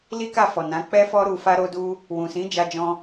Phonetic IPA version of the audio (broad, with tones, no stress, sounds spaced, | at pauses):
l i˦ k a˦˨ f ɔ˨ n ã˨˦ k͡p ɛ˦ f ɔ˦ ɾ u˧ f a˦ ɾ o˦ d u˦ | w ũ˨ s ĩ˨˦ d͡ʒ a˧ d͡ʒ ɔ̃˧